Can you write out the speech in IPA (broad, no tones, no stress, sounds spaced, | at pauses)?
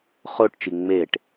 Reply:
χ o ʈ t͡ʃ i ŋ͡m e ʈ